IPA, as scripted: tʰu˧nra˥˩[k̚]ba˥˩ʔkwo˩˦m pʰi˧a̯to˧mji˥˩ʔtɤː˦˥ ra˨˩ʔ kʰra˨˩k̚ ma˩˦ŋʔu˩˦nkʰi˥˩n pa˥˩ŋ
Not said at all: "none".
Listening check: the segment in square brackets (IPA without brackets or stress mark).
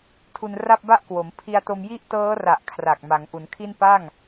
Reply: p̚